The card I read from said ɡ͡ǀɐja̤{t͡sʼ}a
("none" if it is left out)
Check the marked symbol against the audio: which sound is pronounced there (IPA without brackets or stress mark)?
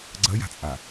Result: t͡sʼ